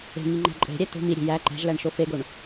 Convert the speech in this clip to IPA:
e̤ ŋiŋ͡ǃæ̤ǃʼe̤ɾʲæ t̪o̤ miɾʲe̤ jæ ǃæ̤ʒlæɳ ʃofeɡoɳ

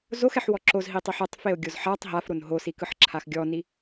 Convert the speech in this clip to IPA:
zoxɛħwɔ ǁozɦitˤiħ ɤtˤfeo̯ɡʲoz ħatˤ ɦafɾon ɦosikɯħǁʰax ɡʲɔni

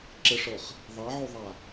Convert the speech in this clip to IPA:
ǁɪʂɤχ | ðˤɑʕoðˤa

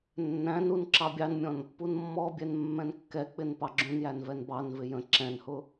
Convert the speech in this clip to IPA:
nːæ̃nun ǁɑbʲɑnmʲɔ̃n | punmːɔbʲɛn mːɛ̃nkːɛk͡pɪn pɑɡ͡ǁũnjæn vɛnbɑnvɪ jə̃ ǁɛ̃nhʊ

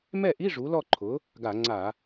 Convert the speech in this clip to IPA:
mɛ˥˩ʔi˧˥˧ ʐu˩˥lɔ˥˩ǃʰʊ˩˥ | ɡa˧˩˧ŋ͡ǀa˧˩˧

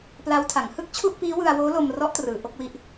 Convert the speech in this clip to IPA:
pla˦˥wtʰa˩˦ŋ hɯ˥˩k̚t͡ɕʰu˥˩ʔpiː˦˥ wɯ˧a̯woː˦˥lo˧m rɔ˦˥ʔtrɯː˩˦ ʔo˦˥k̚wi˥˩ʔ

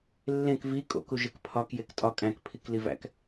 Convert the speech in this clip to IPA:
lːẽk vi kʼo̰ku ʒekpʰɒk jektʼɒ kʼæ̃kpʰikli væ̰k

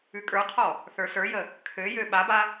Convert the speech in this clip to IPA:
ʉkʼə˞qʰɔ | θə˞sə˞jə | kʰøjø ɓaba

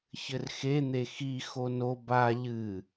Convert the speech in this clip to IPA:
çɘrxen̪e xi xono ba ʎɨ

